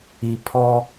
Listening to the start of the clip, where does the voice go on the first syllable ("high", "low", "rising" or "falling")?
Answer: low